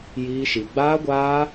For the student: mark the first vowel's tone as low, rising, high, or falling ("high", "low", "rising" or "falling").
high